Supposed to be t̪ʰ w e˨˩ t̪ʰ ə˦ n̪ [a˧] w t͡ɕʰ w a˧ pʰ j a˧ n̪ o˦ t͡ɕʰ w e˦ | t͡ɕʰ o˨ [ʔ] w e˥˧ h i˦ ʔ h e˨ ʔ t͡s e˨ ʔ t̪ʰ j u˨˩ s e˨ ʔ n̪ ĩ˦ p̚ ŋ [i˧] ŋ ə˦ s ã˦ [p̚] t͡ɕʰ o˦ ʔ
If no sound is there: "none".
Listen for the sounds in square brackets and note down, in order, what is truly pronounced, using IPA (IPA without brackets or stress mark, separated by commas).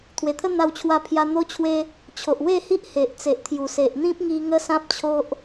a˧, ʔ, i˧, p̚